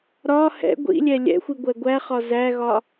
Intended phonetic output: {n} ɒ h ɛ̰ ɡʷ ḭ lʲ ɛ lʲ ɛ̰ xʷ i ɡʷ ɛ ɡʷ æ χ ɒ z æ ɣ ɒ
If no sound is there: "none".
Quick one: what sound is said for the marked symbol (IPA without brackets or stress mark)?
ɾ